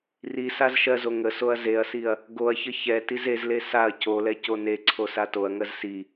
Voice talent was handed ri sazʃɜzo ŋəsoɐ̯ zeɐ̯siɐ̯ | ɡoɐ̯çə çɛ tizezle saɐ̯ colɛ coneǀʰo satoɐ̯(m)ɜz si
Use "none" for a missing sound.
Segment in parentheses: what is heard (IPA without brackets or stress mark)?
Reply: ŋ